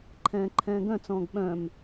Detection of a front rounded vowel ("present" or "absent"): present